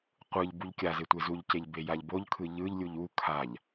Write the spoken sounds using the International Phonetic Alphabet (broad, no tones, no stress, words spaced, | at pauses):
qʷɯʎ buʎkʲaze tʷezuʎceʎ bejaʎboʎkʰɯ ʎɯʎlʲuʎ u kʰaʎ